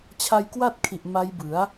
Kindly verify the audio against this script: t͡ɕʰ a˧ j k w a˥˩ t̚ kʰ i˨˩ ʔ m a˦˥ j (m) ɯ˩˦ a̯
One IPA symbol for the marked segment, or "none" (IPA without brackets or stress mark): b